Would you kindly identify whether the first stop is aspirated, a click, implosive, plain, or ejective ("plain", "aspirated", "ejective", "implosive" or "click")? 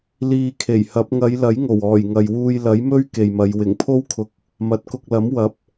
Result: aspirated